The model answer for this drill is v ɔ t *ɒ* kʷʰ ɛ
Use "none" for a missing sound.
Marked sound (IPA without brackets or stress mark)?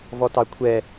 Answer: ɑ